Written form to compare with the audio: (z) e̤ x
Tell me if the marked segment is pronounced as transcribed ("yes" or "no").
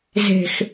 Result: yes